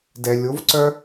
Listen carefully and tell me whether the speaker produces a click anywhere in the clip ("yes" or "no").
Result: yes